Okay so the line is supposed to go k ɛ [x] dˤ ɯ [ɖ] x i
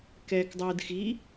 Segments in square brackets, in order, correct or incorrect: incorrect, incorrect

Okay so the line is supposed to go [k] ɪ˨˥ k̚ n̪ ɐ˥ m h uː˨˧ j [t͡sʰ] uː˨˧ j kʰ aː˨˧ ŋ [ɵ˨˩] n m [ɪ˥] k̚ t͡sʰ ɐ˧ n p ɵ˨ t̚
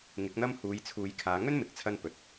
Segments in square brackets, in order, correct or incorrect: incorrect, correct, incorrect, incorrect

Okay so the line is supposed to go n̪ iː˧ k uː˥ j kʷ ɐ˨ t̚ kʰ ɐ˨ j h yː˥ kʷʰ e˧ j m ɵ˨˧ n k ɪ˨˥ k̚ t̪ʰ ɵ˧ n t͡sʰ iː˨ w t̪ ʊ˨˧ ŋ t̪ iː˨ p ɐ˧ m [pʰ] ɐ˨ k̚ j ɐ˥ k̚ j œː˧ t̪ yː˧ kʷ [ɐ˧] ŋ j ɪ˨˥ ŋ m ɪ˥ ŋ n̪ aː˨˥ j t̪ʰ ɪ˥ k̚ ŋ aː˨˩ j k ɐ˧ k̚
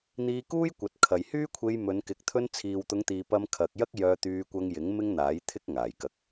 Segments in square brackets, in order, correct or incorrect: incorrect, correct

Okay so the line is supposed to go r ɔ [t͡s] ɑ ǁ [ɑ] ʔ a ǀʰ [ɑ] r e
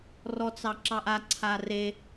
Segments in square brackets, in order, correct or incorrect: correct, correct, incorrect

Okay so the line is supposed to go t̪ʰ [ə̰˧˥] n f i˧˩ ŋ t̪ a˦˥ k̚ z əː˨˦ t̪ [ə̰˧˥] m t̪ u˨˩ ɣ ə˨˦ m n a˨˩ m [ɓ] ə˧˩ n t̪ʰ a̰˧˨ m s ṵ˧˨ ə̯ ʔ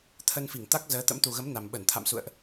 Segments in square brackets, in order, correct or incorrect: incorrect, correct, correct

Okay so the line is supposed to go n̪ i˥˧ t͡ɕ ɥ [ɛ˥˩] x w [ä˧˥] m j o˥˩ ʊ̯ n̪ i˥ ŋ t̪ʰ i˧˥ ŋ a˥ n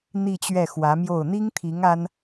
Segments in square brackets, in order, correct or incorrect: correct, correct

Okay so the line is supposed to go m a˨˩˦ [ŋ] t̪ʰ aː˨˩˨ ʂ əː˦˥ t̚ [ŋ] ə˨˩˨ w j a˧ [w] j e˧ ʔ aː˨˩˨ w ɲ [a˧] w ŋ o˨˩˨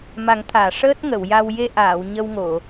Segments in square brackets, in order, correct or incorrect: correct, correct, correct, incorrect

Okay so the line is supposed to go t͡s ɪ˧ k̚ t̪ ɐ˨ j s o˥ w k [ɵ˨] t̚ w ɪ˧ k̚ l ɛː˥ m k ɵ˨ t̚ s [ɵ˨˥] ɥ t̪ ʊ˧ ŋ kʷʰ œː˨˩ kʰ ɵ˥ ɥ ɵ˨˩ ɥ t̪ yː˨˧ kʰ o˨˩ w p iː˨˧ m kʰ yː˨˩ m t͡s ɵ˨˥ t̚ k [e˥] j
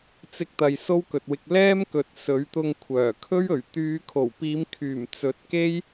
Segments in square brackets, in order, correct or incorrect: correct, correct, correct

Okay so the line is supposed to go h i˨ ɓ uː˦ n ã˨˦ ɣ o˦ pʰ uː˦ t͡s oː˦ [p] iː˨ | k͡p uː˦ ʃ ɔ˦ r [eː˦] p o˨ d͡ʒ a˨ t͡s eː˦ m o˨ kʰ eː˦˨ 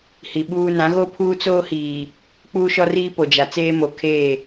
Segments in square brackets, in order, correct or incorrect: incorrect, incorrect

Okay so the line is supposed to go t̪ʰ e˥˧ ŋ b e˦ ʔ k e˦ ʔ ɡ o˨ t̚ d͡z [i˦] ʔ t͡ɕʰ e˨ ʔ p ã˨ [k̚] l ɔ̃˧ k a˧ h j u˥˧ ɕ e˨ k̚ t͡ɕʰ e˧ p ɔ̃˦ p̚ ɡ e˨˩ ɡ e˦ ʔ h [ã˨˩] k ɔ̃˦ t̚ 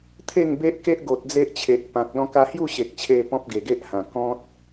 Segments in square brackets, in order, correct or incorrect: incorrect, correct, correct

